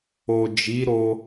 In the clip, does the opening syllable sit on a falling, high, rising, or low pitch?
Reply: low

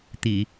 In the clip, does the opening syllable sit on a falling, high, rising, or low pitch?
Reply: low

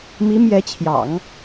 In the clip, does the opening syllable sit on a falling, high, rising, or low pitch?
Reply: rising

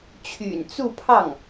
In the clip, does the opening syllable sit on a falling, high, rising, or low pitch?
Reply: low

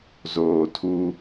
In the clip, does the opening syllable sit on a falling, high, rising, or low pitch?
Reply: low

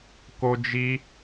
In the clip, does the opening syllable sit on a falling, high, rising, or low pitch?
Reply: high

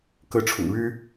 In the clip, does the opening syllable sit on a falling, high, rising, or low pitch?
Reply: rising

